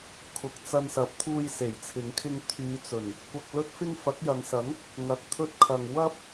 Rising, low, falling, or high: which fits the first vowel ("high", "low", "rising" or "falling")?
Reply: rising